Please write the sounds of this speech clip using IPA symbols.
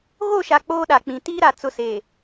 ɣ o˦˨ ʃ a˨ k͡p oː˦ ɗ a˨ k͡p ĩ˨ t iː˦ ɾ a˨ t͡s ʊ˨ s eː˨

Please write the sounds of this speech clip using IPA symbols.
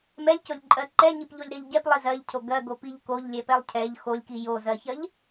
m ɛ lʲ c o lʲ ǃʼ ɜ ǃ ɛ ɲ i p ʎ o lʲ ɾ ɜ ʎ ɟ ɛ p lˠ i z ɜ ʎ cʰ o ɡ ɜ ɡ o p i ʎ k o ʎ lʲ ɛ p ɛ lˠ cʰ ɛ ʎ x o lʲ k i j o z ɜ ç ɜ ʎ

